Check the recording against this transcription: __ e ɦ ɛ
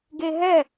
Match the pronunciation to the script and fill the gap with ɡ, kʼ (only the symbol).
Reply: ɡ